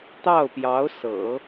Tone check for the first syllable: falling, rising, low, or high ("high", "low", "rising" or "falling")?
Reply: falling